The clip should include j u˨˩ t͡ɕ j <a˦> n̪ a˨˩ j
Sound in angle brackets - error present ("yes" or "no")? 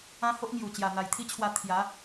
yes